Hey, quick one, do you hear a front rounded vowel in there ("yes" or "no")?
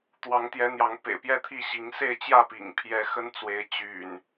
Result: yes